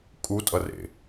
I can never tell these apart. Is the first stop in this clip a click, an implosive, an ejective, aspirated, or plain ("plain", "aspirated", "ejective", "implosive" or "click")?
ejective